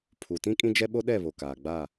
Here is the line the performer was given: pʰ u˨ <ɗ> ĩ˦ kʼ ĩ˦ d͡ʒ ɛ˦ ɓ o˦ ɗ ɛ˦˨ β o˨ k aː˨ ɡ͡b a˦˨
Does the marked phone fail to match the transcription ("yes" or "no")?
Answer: yes